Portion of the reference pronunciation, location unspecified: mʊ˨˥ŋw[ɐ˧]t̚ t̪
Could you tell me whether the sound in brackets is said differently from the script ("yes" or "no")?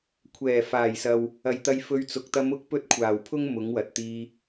yes